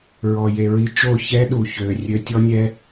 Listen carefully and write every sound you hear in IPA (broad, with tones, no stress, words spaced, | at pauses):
ɹɔ˨je˨ɹi˧t͡ʃo˦˨ çɛ˦ ɗu˨ çø˨ rʲø˧tʲɔ˦nʲɛ˦